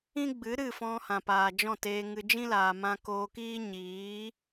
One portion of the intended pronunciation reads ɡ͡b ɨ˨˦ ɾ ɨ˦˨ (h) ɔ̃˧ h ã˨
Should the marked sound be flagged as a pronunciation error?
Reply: yes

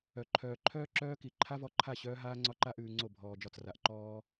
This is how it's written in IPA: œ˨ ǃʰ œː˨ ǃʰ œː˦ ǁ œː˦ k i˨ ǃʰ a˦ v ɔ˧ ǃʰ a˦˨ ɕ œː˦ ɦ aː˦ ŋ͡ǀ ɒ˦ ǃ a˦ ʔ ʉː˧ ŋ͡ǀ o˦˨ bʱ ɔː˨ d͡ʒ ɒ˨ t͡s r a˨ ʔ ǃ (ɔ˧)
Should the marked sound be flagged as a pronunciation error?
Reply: yes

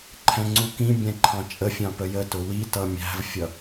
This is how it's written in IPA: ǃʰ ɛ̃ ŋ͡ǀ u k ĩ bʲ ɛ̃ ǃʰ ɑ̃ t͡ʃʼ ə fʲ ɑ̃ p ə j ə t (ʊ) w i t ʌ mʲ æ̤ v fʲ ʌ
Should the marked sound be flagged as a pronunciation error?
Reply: no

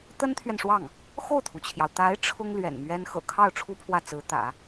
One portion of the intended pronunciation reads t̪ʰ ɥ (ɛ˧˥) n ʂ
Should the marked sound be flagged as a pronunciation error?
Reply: yes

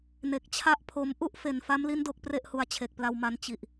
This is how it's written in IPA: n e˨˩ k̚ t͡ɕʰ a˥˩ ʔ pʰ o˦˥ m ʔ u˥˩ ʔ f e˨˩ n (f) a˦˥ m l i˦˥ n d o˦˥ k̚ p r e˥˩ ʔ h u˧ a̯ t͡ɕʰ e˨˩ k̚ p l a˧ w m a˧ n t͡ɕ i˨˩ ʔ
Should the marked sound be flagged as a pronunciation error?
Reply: no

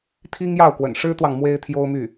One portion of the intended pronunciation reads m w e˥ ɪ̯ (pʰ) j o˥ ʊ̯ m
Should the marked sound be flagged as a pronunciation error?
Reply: yes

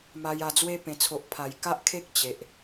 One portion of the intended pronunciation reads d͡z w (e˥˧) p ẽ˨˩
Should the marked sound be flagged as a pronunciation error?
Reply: yes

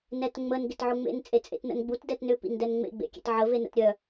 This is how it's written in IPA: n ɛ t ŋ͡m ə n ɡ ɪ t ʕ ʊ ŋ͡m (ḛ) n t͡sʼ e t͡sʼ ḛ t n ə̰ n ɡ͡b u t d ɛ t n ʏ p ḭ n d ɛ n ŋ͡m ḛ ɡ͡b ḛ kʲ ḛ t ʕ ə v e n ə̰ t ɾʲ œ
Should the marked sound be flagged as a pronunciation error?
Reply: no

